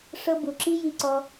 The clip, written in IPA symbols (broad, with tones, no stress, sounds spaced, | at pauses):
ʂ ɤ˦ b u˧ ǁ i˦ j i˦ ǀ ɔ˦